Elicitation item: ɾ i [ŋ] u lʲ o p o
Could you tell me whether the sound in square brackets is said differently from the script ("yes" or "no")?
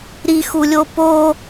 yes